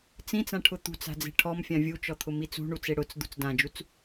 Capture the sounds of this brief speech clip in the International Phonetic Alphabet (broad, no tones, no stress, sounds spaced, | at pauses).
t͡s ĩ t͡s ã ʈʰ ʊ t̪ ṳ t͡s a̤ d͡z e̤ ʈʰ ɔ m fʲ ã vʲ u t͡ʃ ɔ t̪ʰ ʊ m i t͡s ṳ ɳ u t͡s e ɽ ʊ t͡s d̪ ṳ t͡s d ã d͡ʒ u t͡s